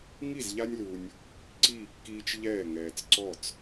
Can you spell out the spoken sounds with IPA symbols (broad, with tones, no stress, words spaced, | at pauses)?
ŋi˥˩zʎa˦nʲlu˨nʲ | ǀiː˥˩kːiː˦t͡ʃ ʎɛː˥˩ŋɛː˨t͡s ǀɔ˥˩t͡s